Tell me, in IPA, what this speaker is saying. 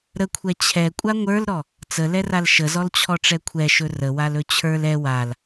ɾ ə kʷʰ ɛ t͡ɕʰ ɛ kʷʼ a ŋʷ ə˞ l ɾ ɔ | t͡s ə l ɛ r a l ʃ ə z ɔ l t͡ɕʰ ɔ ʈ͡ʂ ɛ kʷʰ ɛ ʃ ɵ r ə w a l ɵ t͡ɕʰ ə˞ l ɛ w a l

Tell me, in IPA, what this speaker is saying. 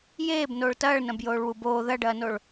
j eː b n oː ɭ t ɐː ɭ n ɐ̃ b j oː ɭ w u b oː ð ɐ ɖ ɐː n o ɭ

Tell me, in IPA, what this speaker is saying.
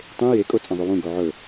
tˤ ẽ j e kʼ o t͡sʼ ɐ̃ ðˤ o w ũ ɡ o ʕ ɵ

